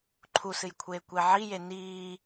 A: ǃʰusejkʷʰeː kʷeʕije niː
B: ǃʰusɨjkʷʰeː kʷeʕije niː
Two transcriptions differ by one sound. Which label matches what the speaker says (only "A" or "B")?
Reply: B